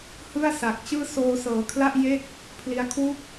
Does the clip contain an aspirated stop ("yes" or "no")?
yes